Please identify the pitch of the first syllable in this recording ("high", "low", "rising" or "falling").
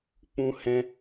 high